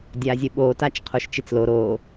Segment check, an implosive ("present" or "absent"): present